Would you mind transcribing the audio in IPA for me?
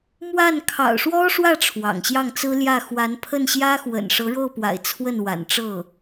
m w a˥˩ n kʰ ɑ̰˨˩ ʊ̯ ʂ w ɔ˥ ʂ w ä˥˩ ʈ͡ʂʰ w ɑ̰˨˩ ŋ ɕ j ɑ˥˩ ŋ t͡s ɹ̩˥ l j ä˥˩ x w a˧˥ n pʰ ə˥˩ n ɕ j ä˥ x w ə̰˨˩ n ʂ ɤ˧˥ ɻ o˥˩ ʊ̯ p w a̰˨˩ ɪ̯ t͡sʰ w ə˥˩ n w a̰˨˩ n ʈ͡ʂ ɤ˥˩

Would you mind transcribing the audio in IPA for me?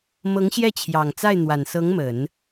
m ɤ˧˥ ŋ ɕ j ɛ˥˩ t͡ɕʰ j ɑ˨˩ ŋ t͡s a˥˩ ɪ̯ n̪ w a˨˩ n s ɤ˧˥ ŋ m ə˨˩˦ n

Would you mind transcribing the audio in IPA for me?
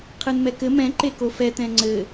qʰ ɨ n m ɛ k ɘ m ɛ̃ ǃ e k o f ɛ t ɛ̃ ŋ͡ǀ ɘ

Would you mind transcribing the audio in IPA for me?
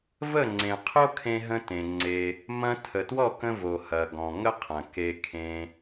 v ə˦˨ ŋ͡ǀ ẽ˨ qʰ o˦ kʰ ẽ˧ ɦ ə̃˧ t ẽ˨ ŋ͡ǀ e˧ | m ɐ̃˧ tʰ ə˨ t w ɔ˦˨ k ə̃˧ v o˨ h ɐ˨ ɡ ɔ̃˨ ŋ ə˦ qʰ ɐ̃˨ k e˧ kʰ ẽ˧

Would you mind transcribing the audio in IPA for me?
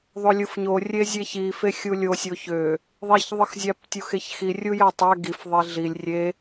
ðˤ o lʲ ɯ f ɲ o rʲ e zʲ e ç i f e xʲ u lʲ o sʲ o ç ø | ðˤ e ç ðˤ ɯ x zʲ æ p tʲ u x e ç x i rʲ u j æ tˤ æ ɡ i f ðˤ e ɮ i lʲ rʲ e

